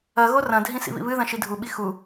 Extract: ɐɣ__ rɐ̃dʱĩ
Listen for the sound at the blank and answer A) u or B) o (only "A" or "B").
B